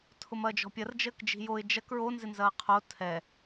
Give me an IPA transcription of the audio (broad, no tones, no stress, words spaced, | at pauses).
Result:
tʰʊmɐːd͡ʒɔ̤pʲɐr d͡ʒəːkd͡ʒi̤joɪ̯ d͡ʒɐk ɹonzɪnzɐː qʰo tʰɛ